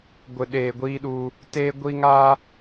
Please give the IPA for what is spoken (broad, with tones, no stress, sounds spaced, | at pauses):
ɡʷ ɪ˨ ɗ eː˨ ɡʷ iː˦ ɗ uː˦ | t eː˦ ɡʷ i˦ ŋ aː˦